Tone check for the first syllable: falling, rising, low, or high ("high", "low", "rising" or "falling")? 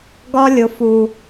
high